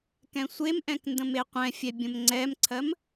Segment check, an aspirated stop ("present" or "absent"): present